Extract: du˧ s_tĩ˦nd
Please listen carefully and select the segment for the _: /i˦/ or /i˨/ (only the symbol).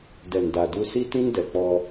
i˦